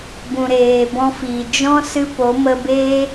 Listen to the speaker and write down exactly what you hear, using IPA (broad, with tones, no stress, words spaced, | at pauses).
bũ˨ɾeː˨ bɔ̃˧fiː˨ d͡ʒɔ̃˦ sɨ˦po˨˦ mə˧beː˦